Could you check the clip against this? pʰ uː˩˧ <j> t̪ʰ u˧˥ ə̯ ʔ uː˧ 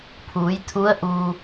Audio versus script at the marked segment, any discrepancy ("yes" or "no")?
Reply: no